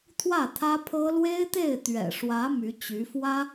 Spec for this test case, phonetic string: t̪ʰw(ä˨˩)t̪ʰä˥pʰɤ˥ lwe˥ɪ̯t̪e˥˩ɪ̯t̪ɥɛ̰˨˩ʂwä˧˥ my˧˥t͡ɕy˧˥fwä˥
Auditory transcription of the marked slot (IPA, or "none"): ä˥˩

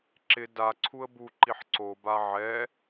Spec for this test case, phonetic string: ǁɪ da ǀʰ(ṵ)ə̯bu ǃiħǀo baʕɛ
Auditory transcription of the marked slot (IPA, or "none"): u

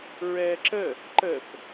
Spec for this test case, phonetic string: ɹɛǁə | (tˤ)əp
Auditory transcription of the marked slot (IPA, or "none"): ǃ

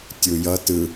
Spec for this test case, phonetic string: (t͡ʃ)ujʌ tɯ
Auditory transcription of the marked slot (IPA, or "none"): tʲ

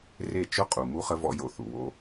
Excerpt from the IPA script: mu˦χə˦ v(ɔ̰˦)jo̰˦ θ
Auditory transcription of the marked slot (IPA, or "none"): ɔ̰˦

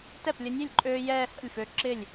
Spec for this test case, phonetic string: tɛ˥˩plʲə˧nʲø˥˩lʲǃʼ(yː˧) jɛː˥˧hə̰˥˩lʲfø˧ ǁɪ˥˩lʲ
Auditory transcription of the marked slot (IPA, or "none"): øː˧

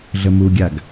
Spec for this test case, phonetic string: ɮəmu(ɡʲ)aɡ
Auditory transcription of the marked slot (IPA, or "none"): ɡʲ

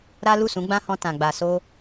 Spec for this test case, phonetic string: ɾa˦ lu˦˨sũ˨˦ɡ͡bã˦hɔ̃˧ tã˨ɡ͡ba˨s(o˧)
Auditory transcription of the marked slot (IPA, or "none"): o˧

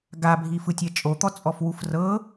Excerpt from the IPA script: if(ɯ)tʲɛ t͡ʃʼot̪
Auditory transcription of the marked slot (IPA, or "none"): ɯ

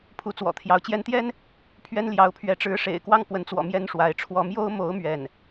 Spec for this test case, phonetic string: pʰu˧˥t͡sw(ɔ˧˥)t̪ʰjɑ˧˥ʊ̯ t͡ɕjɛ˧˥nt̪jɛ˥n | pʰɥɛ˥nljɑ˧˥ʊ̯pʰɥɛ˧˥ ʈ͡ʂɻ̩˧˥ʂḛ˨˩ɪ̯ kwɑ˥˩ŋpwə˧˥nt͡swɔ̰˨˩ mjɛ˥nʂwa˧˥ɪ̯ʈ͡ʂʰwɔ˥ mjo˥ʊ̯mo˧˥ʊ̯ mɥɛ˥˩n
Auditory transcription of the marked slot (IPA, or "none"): ɔ̰˨˩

